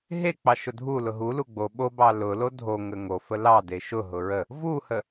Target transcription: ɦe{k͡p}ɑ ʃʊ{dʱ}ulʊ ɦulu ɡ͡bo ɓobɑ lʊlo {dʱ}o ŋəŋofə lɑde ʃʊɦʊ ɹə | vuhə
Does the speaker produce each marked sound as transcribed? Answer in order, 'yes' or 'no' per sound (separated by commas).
yes, yes, yes